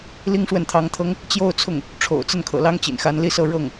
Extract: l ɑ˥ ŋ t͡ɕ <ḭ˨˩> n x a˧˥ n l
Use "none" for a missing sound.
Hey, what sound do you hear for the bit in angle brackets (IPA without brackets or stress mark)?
ḭ˨˩